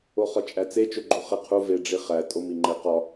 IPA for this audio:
o χ ɒ t͡ʃʼ æ t͡s e t͡ʃ o ɡ͡ǃ u χ e qʰ u v e ɖ͡ʐ i χ æ tʼ o m i ŋ͡ǃ e q ɒ

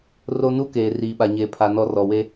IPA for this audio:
r o˦ n u˦ k eː˨ r iː˨ ɓ a˨ ɲ eː˨ pʰ a˨ n ɔ˦ r ɔ˨ w e˦

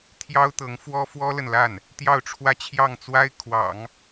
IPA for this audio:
t̪ʰ j ɑ˥ ʊ̯ t̪ ɤ˧˥ ŋ f w ɔ˥ f w ɔ˥ l ə˨ n l a˥˩ n | t̪ j ɑ˥˩ ʊ̯ ʈ͡ʂʰ w ä˥ t͡ɕʰ j ɑ˥˩ ŋ t͡s w a˥ ɪ̯ kʰ w ɑ̰˨˩˦ ŋ

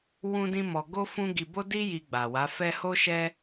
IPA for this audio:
w ũ˦ d ĩ˦ m ɔ˧ ɡ o˦ f ũ˦ ɡ i˧ b o˦ d i˦ j i˧ ɡ͡b a˨ w a˨˦ f ɛ˦ h o˦ ʃ ɛ˦

